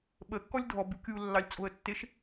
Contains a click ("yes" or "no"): no